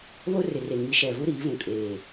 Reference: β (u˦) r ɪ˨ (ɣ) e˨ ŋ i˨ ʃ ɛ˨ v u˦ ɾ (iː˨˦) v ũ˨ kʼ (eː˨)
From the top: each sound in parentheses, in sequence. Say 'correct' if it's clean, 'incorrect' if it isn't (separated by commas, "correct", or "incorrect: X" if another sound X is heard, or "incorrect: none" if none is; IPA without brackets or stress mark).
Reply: incorrect: o˦, incorrect: r, correct, correct